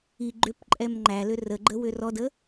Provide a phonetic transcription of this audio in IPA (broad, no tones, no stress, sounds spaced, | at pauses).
i ɡ͡ǃ ʏ p ǃʼ ɛ m ŋ͡ǃ æ l ʏ r ə ɡ͡ǃ ə w ʏ r ɔ d ə